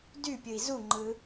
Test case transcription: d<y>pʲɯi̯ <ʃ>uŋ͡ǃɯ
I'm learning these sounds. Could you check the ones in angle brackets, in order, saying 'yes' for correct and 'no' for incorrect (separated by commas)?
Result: yes, no